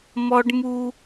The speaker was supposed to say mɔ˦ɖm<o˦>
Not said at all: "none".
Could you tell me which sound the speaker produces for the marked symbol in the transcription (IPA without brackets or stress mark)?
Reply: u˦